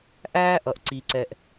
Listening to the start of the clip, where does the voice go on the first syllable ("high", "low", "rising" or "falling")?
high